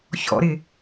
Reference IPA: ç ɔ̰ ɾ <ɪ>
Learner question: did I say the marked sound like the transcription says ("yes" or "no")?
yes